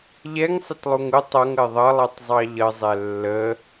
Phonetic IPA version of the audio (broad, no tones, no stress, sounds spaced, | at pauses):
ʎ ɛ ŋ sˤ ɪ t lˠ u ŋ ʊ tˤ ʌ ŋ ɜ ðˤ ʌ lˠ ɛ tˤ zˤ ɑ ʎ ʌ zˤ ɛ lː ə